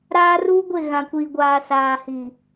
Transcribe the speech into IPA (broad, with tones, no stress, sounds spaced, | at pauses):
ɾ aː˦ r uː˦ ɡʷ e˦˨ ɣ ã˨ kʷ iː˨ ɡʷ aː˨ s aː˨ h i˨